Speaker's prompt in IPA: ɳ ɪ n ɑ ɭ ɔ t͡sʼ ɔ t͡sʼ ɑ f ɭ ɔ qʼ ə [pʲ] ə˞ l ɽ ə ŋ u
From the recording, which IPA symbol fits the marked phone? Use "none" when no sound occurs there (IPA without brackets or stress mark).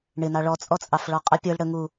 pʲ